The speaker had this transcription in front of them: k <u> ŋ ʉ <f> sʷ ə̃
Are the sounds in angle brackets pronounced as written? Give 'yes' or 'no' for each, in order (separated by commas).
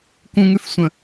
no, yes